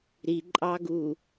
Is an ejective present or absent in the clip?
present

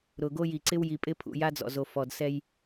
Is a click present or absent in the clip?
present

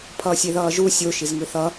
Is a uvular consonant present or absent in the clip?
absent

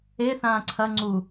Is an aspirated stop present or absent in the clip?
present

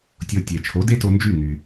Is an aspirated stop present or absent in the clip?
present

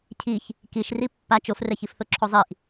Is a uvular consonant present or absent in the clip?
absent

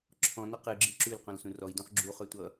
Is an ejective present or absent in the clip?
absent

